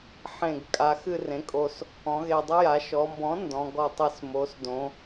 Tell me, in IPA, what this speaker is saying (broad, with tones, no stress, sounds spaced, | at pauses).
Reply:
ħ ẽ˨˩ ɡ kʼ a˩˧ x ɨ˦˨ r ẽ˩˥ kʼ o˨˩ s | ɔ̃˩˧ ɣ e˨˩ dˤ ə˦ j a˩˧ ʃ ɔ˩˧ m b ɔ̃˩˥ n d ɔ̃˩˧ ɡ ɔ˨˩ tˤ ɨ˨˩ s m o˩˧ s d õ˩˧